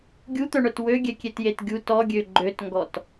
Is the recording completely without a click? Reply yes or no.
no